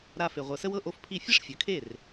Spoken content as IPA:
ɾ a˧ f e˩ ʁʷ ɤ˩ s ə˧ w ɤ˥˩ ʔ o˥˩ f pʰ i˥˩ fʲ e˥ ʂ fʲ ə˩˥ kʰ e˥˩ r

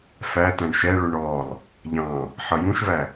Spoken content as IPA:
f æ t æ̃ ɳ ʃ ɛ ɭ u ɳ ɔ lˠ | ʎ ɑ̃ | ħ ʌ j ũ ʃ v æ

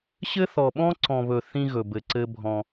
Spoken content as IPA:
ɕ ɘ˦ θ ɔ˨ ɓ ɔ̃˦ ǀ ɔ̃˨ β ɵ˨ θ ĩ˦ ɣ ɵ˨ b ɘ˨ ǀ ɘ˦ bʱ ɔ̃˦

